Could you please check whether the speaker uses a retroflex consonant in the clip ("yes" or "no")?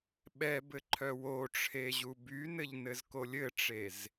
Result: yes